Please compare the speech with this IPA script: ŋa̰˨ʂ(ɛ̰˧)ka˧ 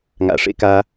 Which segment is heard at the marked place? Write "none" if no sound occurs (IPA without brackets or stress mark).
ḛ˧